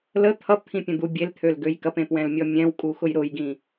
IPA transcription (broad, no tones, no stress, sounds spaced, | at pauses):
l ə t̪ʰ ʌ p t̪ʰ ĩ pʲ ə̃ d̪ u bʲ e l t̪ʰ ø l ɡ ø j k ɐ p ẽ p w ɛ̃ l mʲ ɔ mʲ ɛ̃ w kʼ u x ʊ j ɾ ʊ j ɡ ĩ